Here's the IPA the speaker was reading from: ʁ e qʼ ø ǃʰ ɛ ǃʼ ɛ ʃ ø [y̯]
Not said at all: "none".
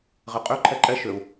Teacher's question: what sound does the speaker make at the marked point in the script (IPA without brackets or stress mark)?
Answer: u̯